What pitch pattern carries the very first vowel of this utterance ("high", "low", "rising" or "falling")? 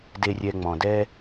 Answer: low